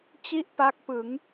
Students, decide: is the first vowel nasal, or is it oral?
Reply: oral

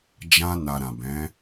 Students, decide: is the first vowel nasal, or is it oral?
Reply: nasal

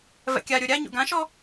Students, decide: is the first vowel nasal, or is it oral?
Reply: oral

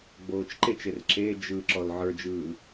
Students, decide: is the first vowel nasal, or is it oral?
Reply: oral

